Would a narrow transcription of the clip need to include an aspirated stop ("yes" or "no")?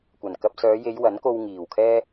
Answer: yes